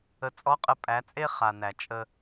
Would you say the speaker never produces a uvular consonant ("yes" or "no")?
no